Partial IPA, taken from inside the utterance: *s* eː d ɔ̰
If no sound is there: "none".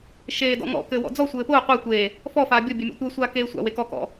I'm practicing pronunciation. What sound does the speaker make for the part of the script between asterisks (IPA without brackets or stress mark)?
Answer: ʃ